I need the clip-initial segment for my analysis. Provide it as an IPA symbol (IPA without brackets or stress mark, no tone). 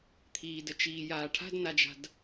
t̪ʰ